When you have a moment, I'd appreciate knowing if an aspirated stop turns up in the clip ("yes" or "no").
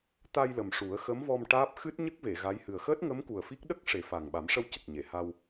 no